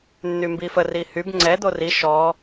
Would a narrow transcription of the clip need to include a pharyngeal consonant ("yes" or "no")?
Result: no